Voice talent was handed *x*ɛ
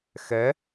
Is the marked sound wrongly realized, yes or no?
no